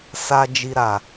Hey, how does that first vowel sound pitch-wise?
high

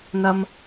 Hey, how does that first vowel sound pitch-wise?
high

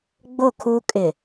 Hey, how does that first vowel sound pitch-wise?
falling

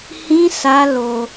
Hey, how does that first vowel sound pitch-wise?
high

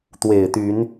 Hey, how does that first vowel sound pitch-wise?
low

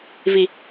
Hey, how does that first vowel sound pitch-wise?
low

